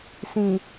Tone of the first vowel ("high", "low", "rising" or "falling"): low